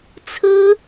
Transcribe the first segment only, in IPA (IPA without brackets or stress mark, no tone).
t͡sʰ